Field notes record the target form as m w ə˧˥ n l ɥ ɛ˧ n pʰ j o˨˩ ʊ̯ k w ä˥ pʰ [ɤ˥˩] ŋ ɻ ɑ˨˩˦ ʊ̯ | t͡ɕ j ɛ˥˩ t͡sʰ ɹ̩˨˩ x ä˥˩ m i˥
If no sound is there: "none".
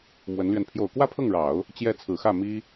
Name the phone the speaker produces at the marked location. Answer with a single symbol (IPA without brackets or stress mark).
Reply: ɤ˥˩